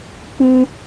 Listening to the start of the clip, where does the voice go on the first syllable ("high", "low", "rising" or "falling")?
high